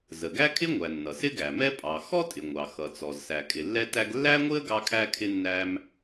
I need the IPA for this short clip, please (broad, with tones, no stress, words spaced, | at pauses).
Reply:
zə˩ɡæ˥kʰɪ˥ŋʷæ˩ nːʌ˩sɪ˥ɡæ˩mɛ˥ pʼɑ˩ xɔ˥tʼɪ˩ ŋʷɑ˩xʌ˩t͡sɔ˩z sæ˩kʼɪ˩lːɛ˥tæ˥ɡ lːæ˥ŋʷɪ˥ə̯ ɡɑ˥kʰæ˥kʰɪ˥ nːæ˥m